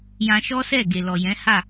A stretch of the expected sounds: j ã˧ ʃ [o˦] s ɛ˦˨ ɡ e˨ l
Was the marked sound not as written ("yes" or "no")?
yes